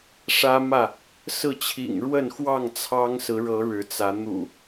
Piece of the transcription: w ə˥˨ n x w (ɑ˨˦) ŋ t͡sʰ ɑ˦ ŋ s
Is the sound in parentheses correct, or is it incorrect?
incorrect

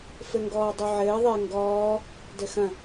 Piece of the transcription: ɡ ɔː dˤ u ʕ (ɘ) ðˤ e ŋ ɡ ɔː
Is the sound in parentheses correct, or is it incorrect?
incorrect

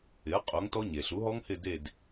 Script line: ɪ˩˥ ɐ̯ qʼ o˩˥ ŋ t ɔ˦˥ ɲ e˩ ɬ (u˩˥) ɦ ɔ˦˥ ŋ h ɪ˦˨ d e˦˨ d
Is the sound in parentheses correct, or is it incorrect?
correct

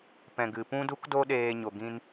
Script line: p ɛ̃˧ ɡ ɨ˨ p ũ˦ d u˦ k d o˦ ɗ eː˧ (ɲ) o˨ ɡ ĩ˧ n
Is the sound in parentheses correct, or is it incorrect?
correct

